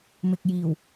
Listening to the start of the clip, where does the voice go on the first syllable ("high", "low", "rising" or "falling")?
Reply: low